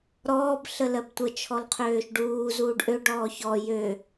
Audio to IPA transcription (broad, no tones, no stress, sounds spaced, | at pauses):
ɾ ɔː b ɬ ə l ɜ b tʷ ə t͡ʃʰ ɔ l qʰ øː ʃ ɖ uː z uː ɖ ʔ ø ɖ ɔː ç ɔ j ø